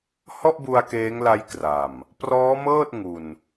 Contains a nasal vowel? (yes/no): no